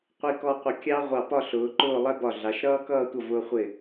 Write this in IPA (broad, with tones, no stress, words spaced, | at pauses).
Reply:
qʷi˧kɔ˧ qʷə˧˩kʲɑ˥ ʁʷɑ˧˩pɒ˥˧ɬʊː˩˧ ǃʊː˥˧lˠɛ˥ bɒ˧˩ɮɑ˩˧ʃɾʌː˥ kʌː˥˧tʷʌ˧˩ vʊː˧ χʷɪ˧˩